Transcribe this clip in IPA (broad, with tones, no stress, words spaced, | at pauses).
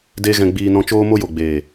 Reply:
de˦ɣɛ̃˧ ɡ͡biː˧ nɔ̃˧t͡ʃoː˦mo˦jo˨ ɡ͡be˨